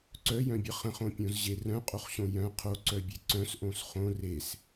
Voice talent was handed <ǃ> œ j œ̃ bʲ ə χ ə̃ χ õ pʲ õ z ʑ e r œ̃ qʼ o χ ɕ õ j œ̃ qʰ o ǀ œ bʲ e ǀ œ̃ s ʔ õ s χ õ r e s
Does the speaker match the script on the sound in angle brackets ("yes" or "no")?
no